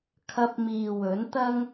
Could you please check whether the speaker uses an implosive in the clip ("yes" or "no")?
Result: no